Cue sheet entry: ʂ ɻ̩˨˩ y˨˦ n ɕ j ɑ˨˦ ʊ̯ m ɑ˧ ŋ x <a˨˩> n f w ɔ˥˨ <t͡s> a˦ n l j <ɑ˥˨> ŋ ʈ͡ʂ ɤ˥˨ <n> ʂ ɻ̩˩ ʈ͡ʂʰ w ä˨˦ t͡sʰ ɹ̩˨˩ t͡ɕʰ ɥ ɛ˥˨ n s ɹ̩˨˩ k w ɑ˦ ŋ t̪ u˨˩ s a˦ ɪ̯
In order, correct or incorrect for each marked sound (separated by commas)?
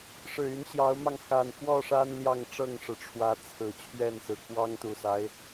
correct, incorrect, correct, incorrect